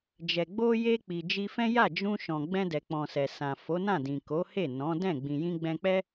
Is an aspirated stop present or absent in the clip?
absent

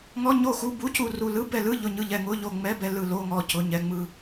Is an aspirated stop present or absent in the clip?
absent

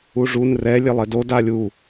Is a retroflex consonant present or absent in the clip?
present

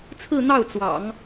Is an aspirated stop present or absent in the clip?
present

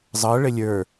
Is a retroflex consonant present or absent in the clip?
present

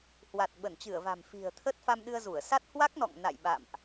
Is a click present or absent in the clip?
absent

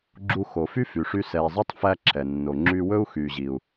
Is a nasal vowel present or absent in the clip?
absent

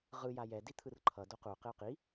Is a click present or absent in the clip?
present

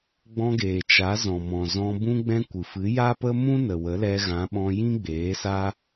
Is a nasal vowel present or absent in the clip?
present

